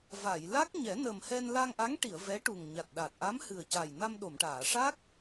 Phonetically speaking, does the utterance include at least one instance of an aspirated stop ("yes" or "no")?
no